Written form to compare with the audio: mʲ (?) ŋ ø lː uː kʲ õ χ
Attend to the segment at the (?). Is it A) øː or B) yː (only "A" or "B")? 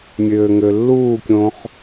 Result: A